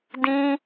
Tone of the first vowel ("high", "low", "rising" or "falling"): high